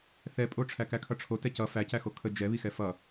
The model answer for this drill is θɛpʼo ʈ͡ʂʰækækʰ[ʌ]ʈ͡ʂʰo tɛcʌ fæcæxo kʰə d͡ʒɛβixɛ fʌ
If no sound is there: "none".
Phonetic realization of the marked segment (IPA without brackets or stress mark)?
ʌ